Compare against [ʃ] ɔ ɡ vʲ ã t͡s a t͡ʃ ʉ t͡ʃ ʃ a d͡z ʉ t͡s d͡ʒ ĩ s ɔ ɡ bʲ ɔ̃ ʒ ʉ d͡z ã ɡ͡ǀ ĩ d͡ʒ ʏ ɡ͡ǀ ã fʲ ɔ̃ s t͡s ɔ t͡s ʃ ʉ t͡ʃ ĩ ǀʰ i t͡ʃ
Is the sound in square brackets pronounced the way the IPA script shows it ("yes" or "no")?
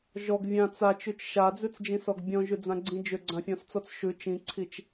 no